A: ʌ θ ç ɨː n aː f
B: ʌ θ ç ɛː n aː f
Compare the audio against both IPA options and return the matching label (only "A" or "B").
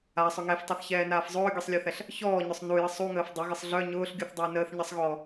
B